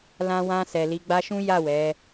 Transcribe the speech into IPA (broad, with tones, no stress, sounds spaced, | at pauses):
l ã˧ w ã˧ s ɛ˨ l i˨˦ ɡ͡b a˧ ʃ ũ˦ j a˦˨ w ɛ˨˦